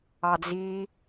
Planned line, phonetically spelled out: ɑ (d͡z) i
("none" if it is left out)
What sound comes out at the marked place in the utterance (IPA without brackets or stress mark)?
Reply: d͡z